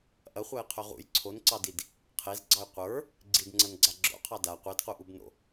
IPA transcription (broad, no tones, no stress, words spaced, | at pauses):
ʔɐχʷajqʰø ʁṵj ǀʰonǀɑdid | qʰezɡ͡ǀɑj qʷə˞ | ɡ͡ǀidŋ͡ǀɐnɡ͡ǀa ɡ͡ǁo̰qʰɑ da qʷedquʔubno̰